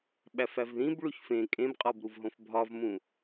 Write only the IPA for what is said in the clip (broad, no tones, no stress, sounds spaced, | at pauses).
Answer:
ɓ æ f æ v ð ĩ b ɭ u ç f ẽ kʼ ẽ b qʼ ɒ b ɾ u v ɦ õ f bʱ ɒ v m ũ